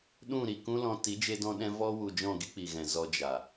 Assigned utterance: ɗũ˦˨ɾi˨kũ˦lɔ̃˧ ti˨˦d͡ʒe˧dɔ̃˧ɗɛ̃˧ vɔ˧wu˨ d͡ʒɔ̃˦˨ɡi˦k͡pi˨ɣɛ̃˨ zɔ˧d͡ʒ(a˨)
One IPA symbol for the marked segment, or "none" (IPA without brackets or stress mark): a˨